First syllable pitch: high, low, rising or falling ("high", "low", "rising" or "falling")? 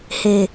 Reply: low